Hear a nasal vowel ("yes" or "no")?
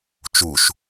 no